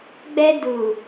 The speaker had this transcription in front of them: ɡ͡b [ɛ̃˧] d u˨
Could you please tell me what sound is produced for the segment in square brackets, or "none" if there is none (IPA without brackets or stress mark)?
ɛ˧